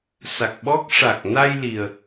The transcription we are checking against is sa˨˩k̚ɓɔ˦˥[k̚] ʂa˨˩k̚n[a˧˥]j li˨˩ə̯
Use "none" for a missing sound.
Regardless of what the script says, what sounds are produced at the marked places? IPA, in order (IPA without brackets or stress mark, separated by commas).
k̚, a˧